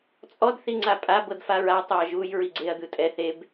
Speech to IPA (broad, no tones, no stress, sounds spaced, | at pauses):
t͡sʼ ɔ d θ i ŋ͡ǀ a pʼ a b ɤ d f a ɹ a tˤ o ɐ̯ ʒ u j ɹ i ɡ͡ǀ e ɐ̯ d̪ ɯ tʼ ɛ θ e b